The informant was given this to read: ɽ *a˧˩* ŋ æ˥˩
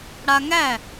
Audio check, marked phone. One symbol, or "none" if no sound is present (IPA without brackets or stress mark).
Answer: a˧